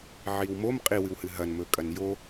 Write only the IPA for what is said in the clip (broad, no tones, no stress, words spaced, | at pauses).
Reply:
ʕiwmom qʼiwɨwhɨ ɦɐnmɵkʼɐn jo